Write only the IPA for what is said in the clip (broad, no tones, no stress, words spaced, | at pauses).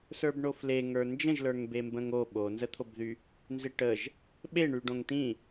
sə˞bɳofle ŋə˞nd͡ʒə̃ʒ lə˞ŋbembə̃ŋo ɓonzət̪ʰobðy | nzɪʈəʒ | ɓeɳy ɖõŋtĩ